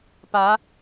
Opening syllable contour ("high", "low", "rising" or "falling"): rising